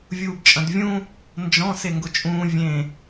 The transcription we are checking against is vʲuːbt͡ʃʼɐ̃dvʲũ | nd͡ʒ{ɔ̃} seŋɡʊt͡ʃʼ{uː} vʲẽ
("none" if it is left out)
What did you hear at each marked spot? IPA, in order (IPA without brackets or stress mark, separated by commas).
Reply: ɔ̃, ũː